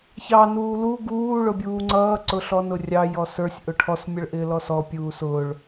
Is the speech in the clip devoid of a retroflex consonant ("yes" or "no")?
no